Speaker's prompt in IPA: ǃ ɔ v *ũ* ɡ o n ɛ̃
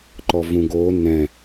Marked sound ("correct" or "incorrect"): correct